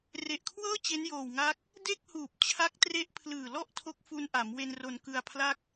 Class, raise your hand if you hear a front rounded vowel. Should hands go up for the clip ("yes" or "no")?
no